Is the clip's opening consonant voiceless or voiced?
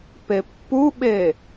voiceless